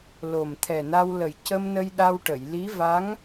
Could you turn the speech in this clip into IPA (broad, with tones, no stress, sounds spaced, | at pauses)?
l o˨˩ m t̪ʰ ɛ˨˩ n a˧ w l ə˨˩ j c ə˧ m n ə˧ j ɗ a˧ w ʈ ə˨˩˨ j l i˧˥ v a˧˥ ŋ